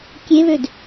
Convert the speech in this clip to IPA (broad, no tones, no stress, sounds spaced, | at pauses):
kʲ e β ø d